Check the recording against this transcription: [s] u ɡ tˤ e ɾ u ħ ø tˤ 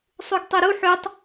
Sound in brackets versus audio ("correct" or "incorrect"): incorrect